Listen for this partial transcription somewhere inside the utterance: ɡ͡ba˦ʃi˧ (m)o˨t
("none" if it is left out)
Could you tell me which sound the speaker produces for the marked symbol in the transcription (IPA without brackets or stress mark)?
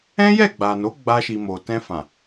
m